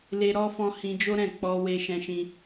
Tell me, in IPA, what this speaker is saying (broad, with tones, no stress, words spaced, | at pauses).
le˧ ɾɔ˧fɔ̃˧ hĩ˧d͡ʒo˦ɾɛ̃˦˨ k͡pɔ˧we˧ ʃɛ̃˦ʃĩ˦